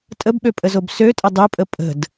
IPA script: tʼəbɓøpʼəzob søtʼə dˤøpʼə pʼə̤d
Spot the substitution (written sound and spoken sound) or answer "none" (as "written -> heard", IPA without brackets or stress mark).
none